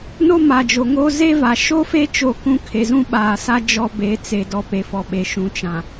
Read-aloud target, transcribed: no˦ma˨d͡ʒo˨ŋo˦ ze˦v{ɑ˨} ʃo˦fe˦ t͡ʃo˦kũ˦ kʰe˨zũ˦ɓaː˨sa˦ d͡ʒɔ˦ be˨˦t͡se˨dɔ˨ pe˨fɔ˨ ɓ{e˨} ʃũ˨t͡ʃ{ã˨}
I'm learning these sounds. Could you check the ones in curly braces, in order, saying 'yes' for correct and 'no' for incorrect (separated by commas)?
no, yes, yes